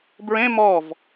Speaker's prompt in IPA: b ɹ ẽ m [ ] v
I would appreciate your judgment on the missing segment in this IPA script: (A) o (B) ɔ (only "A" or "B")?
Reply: B